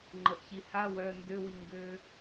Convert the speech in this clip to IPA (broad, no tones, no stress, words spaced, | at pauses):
ŋ͡ǃəʔçiha wœ ndøwiŋɡø